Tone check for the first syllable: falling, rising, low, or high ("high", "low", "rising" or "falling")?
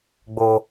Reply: high